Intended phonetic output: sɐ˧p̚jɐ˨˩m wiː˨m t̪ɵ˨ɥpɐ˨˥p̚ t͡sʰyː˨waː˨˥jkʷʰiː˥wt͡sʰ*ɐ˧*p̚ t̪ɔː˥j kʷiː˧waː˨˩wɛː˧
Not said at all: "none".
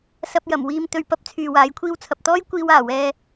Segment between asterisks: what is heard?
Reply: ɐ˧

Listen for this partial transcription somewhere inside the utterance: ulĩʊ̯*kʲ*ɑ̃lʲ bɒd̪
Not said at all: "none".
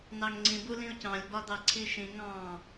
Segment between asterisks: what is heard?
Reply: c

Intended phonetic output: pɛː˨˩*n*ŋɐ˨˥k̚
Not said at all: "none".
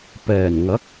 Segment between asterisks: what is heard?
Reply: n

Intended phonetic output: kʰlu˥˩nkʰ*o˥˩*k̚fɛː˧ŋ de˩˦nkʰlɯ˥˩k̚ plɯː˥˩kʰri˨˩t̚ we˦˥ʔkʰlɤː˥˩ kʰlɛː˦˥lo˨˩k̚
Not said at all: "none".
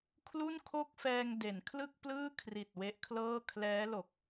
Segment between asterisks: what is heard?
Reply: o˥˩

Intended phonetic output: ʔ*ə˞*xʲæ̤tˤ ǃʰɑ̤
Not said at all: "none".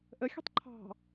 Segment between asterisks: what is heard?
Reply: ə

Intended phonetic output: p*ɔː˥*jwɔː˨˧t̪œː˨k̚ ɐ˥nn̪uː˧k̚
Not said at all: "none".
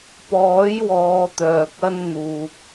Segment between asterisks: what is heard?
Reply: ɔː˨˥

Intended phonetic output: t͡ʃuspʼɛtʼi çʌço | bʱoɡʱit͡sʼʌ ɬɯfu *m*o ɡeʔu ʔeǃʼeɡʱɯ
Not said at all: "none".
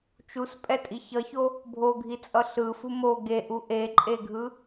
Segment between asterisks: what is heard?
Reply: m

